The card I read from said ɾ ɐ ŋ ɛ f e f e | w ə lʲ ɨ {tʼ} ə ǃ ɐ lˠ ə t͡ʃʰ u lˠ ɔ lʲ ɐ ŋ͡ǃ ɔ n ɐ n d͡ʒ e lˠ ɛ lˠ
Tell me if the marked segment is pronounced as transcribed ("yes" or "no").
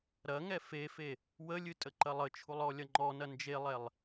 yes